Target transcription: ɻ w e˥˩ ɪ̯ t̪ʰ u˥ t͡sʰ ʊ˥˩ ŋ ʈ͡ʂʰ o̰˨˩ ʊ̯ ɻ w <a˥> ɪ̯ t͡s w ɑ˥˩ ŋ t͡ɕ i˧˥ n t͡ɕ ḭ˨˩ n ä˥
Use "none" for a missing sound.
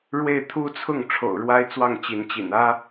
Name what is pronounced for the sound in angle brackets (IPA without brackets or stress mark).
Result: a˥